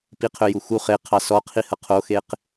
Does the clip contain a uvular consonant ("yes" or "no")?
yes